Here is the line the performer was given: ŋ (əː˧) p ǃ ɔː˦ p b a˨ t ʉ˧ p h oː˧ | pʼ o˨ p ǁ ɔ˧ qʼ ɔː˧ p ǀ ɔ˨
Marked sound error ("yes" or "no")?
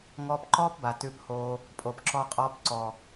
yes